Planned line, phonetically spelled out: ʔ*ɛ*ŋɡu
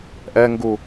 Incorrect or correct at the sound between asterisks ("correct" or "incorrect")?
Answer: correct